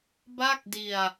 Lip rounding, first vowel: unrounded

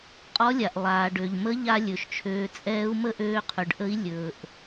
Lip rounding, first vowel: rounded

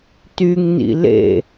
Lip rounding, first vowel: rounded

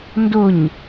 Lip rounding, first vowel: rounded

